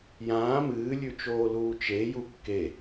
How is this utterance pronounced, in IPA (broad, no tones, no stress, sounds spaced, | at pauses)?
j ãː m ɨː lʲ ʉ t͡ʃ oː l uː t͡ʃ e j u kː e